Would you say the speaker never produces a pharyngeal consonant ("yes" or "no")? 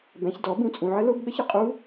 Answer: no